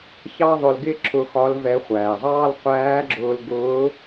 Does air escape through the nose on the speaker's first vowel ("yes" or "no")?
no